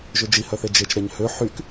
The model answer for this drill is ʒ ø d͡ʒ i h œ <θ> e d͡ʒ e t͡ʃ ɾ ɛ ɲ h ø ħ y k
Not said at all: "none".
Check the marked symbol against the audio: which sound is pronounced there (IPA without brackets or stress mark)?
θ